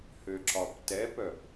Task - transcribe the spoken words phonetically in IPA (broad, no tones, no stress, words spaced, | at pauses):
høǁɒptɛpœp